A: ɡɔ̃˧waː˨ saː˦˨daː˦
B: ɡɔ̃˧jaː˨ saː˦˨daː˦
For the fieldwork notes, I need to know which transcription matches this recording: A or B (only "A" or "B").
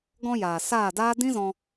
B